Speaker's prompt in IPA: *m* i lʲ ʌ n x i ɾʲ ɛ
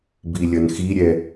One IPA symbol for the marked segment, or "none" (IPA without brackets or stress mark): b